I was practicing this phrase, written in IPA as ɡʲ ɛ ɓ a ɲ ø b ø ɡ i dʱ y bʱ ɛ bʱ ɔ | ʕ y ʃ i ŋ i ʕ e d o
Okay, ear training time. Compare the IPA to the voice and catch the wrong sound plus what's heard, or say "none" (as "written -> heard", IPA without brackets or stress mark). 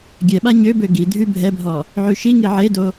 none